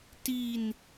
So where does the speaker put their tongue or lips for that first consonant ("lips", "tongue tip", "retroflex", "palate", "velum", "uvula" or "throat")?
tongue tip